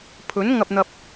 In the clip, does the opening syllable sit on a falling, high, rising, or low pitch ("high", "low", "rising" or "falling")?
rising